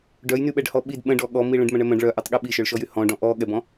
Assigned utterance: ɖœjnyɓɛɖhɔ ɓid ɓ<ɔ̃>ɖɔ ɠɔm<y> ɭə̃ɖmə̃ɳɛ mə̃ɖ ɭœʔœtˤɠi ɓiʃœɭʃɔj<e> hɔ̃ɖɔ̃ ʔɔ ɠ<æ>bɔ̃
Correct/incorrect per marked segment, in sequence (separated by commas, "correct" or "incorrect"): incorrect, incorrect, incorrect, incorrect